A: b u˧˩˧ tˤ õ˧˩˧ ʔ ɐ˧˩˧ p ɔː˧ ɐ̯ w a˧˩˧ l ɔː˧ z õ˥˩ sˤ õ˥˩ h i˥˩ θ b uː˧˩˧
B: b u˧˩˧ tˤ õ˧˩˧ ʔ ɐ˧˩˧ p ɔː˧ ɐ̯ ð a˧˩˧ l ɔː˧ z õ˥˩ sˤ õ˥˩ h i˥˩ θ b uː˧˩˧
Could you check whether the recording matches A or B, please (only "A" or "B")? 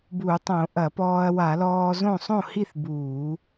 A